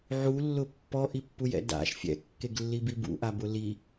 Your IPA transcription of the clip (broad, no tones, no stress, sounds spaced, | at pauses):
ʕ u lː ʊ pː ɔ ʔ i pː u j ɛ̰ d a̰ ʃ fʲ ɛ̰ kː e ɡ lː i b i b ṵ ʔ a b ʊ l i